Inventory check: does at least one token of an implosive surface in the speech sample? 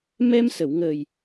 no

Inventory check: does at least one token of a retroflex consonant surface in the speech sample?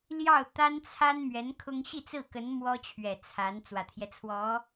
no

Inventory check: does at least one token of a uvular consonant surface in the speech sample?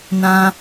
no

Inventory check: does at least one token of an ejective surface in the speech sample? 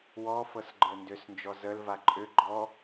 yes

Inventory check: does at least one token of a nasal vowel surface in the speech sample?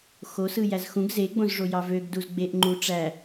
yes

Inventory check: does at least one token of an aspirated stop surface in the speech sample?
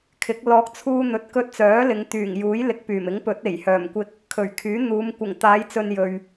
yes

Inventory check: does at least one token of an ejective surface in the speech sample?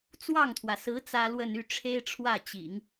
no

